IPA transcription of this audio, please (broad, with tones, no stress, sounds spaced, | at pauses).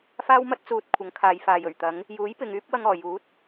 f aː˥ w m ɐ˥ t̚ t͡s uː˨˥ t̚ kʷʰ ɐ˨˥ ŋ kʰ aː˨˧ j f aː˨ j ɵ˨˩ ɥ t̪ ɐ˨˥ ŋ | j uː˨˥ j p ɪ˨ ŋ yː˥ p̚ w ɐ˧ ŋ ɔː˨˩ j uː˨˥ t̚